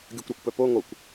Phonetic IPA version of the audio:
ɡʲ o kʷ ɾ ɔ kʷ p œ p o ŋ o kʷ

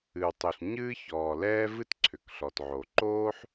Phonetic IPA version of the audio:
ɨ˩ w tˤ o˩ ɬ ɲ ɨː˥ ç ɔː˩ l ɛː˥ v ɨ˥ t ǀʰ ʏ˩ k ɬ ɔ˩ t ʕ o˩ ǃ oː˥ ħ

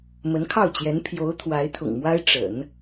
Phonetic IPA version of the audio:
m ə˧˥ n kʰ ɑ˥˩ ʊ̯ t͡ɕ j ɛ˧˥ n pʰ j o˧˥ ʊ̯ t̪ʰ w a˧˥ ɪ̯ t̪ʰ ʊ̰˨˩ ŋ m w a˥ ɪ̯ ʈ͡ʂ ə̰˨˩˦ n

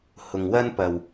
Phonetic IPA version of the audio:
h ʊ˨ ŋ w ɐ˥ n p ɐ˨ w

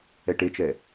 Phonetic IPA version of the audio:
ɛ ʈ e t͡ʃ ɛ

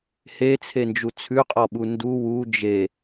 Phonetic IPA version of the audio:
h e t͡sʰ e n d͡ʒ u t͡sʰ ʉ qʼ ɔ ɓ u n d u w u d͡ʒ e

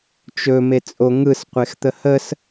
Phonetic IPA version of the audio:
t͡ʃ ɵ m e t͡sʼ o ŋ ɯ s qʷ e x t̪ ə h ə s

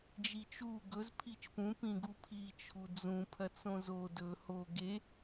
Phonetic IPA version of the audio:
d͡ʒ i t͡ʃ u ɡ ɵ z pʰ i t͡ʃ p ũ p ĩ ɡ u pʰ i t͡ʃʰ u d͡z ũ pʰ ɐ t͡s õ z o d ɵ h o ɡ e

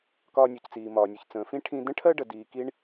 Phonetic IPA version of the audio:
k ɒː˧ nʲ u˩ c t͡s iː˩ m ɒː˩ nʲ u˩ ç t͡s ə̃ː˩ f ĩ˥ ʈʰ ĩ˧ d ə̃˥ ʈʰ ɜ˥ ɖ ə˩ d iː˩ k i˧ ɳ

